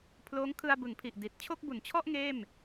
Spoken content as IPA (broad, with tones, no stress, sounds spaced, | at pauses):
pʰ l oː˦˥ ŋ kʰ ɯ˧ a̯ b ɯ˩˦ ŋ pʰ i˨˩ ʔ d i˨˩ t̚ t͡ɕʰ o˥˩ k̚ b u˨˩ n t͡ɕʰ ɔ˥˩ ʔ ŋ eː˥˩ m